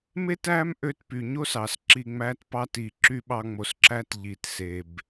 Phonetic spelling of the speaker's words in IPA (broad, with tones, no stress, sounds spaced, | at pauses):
m e˦ t æ˦ m ʔ ø˧ t p y˨ ɲ o˦ s ɑ˨ s ǁ i˧ ŋ͡m æ˦ t p ɑ˦ t i˧ ǁ y˦ ɓ ɑ˦ ŋ͡m o˧ s ǁ æ˦ t ʎ i˧ t s e˧ b